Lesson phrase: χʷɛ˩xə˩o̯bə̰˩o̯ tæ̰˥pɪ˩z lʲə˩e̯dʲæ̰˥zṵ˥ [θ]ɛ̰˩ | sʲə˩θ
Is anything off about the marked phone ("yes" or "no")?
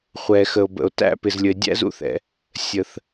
no